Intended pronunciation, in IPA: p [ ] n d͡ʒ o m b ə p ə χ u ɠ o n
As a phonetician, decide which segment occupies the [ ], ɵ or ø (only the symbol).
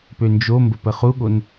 ø